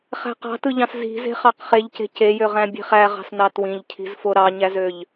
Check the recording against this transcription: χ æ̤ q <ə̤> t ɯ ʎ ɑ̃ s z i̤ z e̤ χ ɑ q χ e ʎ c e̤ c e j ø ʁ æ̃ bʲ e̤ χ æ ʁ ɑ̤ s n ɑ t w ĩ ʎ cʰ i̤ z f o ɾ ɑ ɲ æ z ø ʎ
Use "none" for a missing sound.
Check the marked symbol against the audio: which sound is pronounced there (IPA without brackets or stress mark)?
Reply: ɑ̤